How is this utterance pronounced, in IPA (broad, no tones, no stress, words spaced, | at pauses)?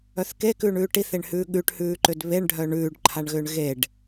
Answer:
œθkekʉːɳʉː ʈiθeɳhʉː ɠʉʈhʉːǃʏd βeɳɖʱœ ɳʉːɖǃʰaɳɣʏːɳ ɣeɖ